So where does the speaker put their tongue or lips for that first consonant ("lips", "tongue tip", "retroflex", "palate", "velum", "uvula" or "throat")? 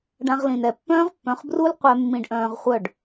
retroflex